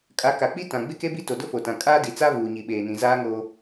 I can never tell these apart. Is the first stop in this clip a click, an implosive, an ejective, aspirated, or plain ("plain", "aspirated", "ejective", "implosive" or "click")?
ejective